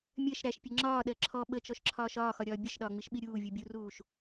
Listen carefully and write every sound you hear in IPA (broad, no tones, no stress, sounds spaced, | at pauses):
mʲ ɜ ʃ ɾ æ ʃ pʲ ʌ ŋ͡ǁ ɒː ɗ ɜ ǁʰ ɔ ɓ ə t͡ʃ ɔ ʃ ǁʰ ɒː ʃ ɒː x ɒ ɾʲ ɒː bʲ ʌ ʃ ɗ ɒː ŋ͡m i ʃ ɓ i ɾʲ uː vʲ u bʲ u r uː ʃ